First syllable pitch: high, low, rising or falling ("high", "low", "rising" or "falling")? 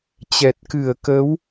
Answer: low